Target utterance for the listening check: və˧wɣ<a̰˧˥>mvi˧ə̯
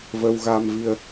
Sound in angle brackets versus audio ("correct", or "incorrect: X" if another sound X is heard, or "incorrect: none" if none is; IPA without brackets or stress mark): incorrect: a˧